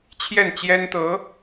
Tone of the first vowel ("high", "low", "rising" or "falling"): falling